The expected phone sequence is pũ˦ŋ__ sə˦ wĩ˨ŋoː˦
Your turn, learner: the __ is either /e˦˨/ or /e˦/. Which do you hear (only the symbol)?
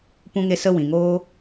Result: e˦